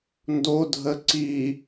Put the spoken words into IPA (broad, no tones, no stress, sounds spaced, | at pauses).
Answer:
n d o dʱ ə ǀ i